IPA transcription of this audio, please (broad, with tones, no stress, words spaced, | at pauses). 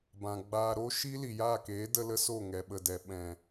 bã˨ɡ͡baː˧ ɾo˦ʃi˦ li˨jaː˦˨keː˨˦ də˦lə˦so˦˨ ŋɛ˨ɓə˨dɛ˨ ɓɛ̃˨